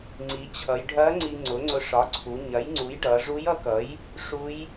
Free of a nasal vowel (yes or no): yes